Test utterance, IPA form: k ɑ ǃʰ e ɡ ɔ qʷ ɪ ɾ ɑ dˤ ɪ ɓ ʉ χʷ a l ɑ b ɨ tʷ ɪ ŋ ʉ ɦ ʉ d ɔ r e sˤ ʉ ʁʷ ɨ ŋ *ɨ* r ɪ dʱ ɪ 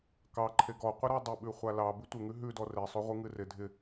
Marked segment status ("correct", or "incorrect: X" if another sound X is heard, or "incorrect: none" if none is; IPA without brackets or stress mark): correct